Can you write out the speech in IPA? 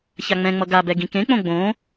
çaŋ͡mɛ̃ŋ͡mʌ ɡabɛ ɡĩkẽk͡põ ɡ͡bõ

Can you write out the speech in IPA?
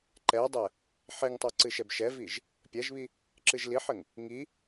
ǃɛdˤɛ | ħeŋtˤo ǀɨʃɛbʃɛviʒ | pʲɛʒβi | ǁɨʒliħɘŋ | ŋi

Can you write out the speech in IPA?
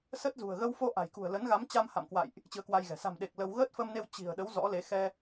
sə˦˥t̚zṳ˨˩ə̯ ɣə˧wfo˧ʔa̤˨˩jkṳ˨˩ə̯ lə˨˦nɣa˨˦mt͡ɕa˧m ha̰˧˨mkwa̰˧˨jʔ | t͡ɕɨ˧ə̯kwa˧jɣɛ̤˨˩ sa̤˨˩mɗe˨˩k̚ lə˧w ɣəː˦˥t̚fə˧mne˧w t͡ɕi̤˨˩ə̯ɗə˨˦w zɔ̰˧˥le˨˦ xɛ˧

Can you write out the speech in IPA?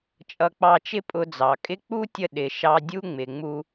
t͡ʃʼʌ˧k͡pɑ˧t͡ʃɪ˥pʼʊ˧ d͡zɑ˩ kʼɪ˥ k͡pu˥tʲə˧ ɗɪ˩ʃɑ˧dʲu˥ ŋ͡mɪ˩ ŋ͡mu˧

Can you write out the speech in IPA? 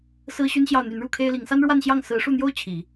sɹ̩˥ɕy˥nɕjɑ˥˩ʊ̯ n̪y˧˥nɻu˥˩kʰe˥ɪ̯li˧˥ŋ sa˥nɻwa˥˧nɕjɑ˥˩ŋ sɹ̩˧˥ʂu˥˩n̪jo˥ʊ̯ t͡ɕʰi˨˩˦

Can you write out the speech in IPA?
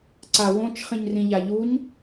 ǀawõt͡ʃ χĩɲrĩʎaʎuɲ

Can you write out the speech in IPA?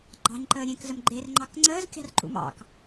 ɡ͡ǃɑ̤ɲǃəː ɾʲẽkzəm ɡ͡ǃerŋ͡ǃɑk ŋ͡ǀəːzkʲɑ̤rǃṵm ɑ̰k

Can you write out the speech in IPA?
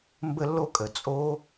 mbə˧lːo˧kʼə˩ t͡sʼo˧

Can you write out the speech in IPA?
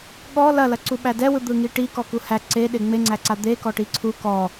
ɠɔ lɐlɐ ǀuɓædɛwɯ d̪ɯŋiʈi kɔkuhæ ǀe ɗeŋ͡meŋ͡ǀæǀa d̪ekɔ ʈiǀʰu kɔ

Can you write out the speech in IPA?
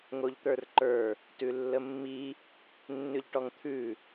ŋoʎt̪ə˞rǃə˞ | tʉlːəmːi | nːʉʎʈɔŋt̪ʰʉ

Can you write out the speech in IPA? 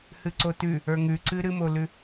hɨǀotʉ | ə˞ŋʉǀɨ ɾɨmolʉ

